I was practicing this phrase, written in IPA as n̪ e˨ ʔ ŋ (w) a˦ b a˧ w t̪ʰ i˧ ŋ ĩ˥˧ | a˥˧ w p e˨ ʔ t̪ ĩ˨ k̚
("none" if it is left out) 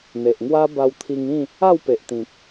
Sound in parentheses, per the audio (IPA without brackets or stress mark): w